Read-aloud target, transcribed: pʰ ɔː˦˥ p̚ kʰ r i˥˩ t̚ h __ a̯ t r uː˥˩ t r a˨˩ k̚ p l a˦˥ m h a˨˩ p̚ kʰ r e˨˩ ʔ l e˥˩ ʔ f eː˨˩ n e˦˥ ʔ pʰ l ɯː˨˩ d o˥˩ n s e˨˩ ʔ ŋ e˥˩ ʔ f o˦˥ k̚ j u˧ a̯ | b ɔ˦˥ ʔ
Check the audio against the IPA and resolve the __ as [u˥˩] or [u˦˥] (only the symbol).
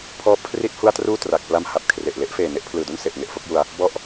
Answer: u˥˩